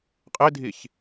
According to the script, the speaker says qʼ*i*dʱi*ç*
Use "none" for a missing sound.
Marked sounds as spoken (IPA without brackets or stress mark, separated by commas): i, ç